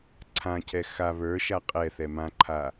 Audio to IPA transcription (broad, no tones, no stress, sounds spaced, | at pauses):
ǀʰ ã cʰ ɛ x a β ə˞ ʃ a qʼ ɛ θ ɛ m ã ǃʰ a